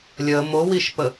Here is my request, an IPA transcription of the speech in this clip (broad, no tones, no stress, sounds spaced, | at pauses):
lʲ ə m o w i ʃ p ə